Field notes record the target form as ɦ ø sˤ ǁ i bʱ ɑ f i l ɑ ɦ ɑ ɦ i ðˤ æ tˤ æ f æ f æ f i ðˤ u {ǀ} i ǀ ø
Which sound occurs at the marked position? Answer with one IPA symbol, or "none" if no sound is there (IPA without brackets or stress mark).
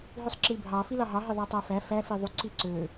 ǀ